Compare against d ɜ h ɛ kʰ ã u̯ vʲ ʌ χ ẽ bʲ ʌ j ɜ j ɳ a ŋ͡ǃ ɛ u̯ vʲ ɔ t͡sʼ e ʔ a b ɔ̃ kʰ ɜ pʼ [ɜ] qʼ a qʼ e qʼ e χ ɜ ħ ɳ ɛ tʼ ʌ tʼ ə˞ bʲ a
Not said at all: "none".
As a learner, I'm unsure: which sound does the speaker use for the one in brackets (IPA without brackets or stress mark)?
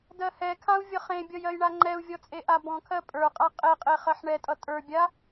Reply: ə˞